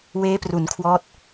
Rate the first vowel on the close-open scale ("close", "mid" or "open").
mid